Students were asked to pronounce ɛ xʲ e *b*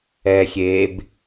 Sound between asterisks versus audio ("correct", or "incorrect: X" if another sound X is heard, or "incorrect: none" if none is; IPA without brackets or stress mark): correct